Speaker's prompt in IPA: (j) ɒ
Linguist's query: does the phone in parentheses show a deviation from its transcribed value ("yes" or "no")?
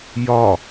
no